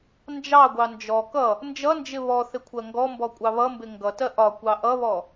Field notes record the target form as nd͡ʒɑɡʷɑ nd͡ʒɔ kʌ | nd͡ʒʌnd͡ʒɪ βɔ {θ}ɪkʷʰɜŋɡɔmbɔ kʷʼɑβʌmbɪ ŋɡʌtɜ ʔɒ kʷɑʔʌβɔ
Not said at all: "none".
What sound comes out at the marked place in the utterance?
θ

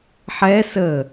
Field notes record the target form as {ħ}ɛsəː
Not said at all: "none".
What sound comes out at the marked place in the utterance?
ħ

